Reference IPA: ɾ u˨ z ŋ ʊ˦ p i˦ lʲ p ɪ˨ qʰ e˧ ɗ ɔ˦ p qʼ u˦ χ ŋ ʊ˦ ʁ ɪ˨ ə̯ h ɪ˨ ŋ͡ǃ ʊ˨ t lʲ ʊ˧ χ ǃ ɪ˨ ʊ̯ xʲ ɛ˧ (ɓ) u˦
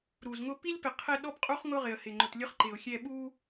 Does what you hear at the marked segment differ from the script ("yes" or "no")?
no